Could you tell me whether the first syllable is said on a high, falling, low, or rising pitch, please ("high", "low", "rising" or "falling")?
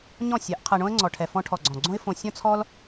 falling